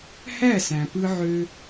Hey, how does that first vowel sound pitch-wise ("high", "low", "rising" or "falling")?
falling